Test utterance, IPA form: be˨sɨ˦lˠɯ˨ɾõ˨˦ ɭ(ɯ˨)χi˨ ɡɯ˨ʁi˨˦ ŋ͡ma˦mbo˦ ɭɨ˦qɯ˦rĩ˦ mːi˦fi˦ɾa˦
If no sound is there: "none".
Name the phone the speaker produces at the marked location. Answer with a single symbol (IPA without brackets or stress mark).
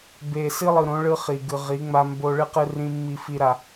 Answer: ɯ˦